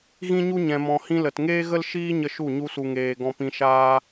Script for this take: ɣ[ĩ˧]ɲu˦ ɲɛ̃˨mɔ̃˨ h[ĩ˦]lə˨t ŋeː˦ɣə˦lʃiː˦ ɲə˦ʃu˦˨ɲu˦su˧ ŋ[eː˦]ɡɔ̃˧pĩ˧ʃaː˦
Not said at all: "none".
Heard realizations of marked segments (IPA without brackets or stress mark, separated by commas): ĩ˦, ĩ˦, eː˨